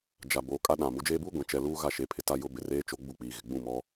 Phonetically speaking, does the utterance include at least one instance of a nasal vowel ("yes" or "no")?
yes